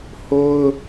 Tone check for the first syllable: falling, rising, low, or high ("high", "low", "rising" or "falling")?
high